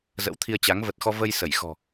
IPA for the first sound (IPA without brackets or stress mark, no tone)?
z